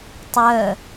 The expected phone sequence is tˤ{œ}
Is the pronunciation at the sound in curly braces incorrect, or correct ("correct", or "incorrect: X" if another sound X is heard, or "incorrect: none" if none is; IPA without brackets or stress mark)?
correct